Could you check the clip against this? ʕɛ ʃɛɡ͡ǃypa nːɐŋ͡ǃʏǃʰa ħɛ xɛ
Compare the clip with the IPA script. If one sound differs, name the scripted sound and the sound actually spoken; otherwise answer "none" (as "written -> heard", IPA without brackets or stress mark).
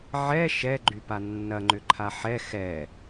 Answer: none